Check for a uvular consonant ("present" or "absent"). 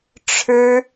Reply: absent